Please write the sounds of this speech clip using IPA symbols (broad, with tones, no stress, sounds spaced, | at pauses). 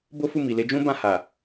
b o˦ f u˦˨ m i˨ l e˨˦ d͡ʒ ũ˦ b ã˦˨ h a˨